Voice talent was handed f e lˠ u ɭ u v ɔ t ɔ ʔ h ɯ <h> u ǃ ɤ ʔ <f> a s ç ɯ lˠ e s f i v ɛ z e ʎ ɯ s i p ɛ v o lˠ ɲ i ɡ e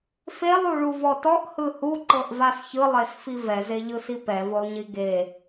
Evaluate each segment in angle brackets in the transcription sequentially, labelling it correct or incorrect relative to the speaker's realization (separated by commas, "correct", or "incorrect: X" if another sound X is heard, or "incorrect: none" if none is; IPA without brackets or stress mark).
correct, incorrect: v